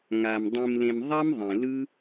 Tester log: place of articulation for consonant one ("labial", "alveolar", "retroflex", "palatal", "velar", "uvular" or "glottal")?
velar